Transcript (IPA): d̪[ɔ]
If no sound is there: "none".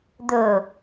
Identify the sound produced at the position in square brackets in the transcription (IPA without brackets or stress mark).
ɵ